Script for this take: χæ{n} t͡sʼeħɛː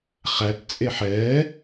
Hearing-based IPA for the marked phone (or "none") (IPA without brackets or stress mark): t